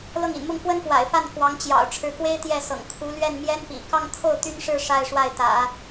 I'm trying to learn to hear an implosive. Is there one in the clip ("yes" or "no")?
no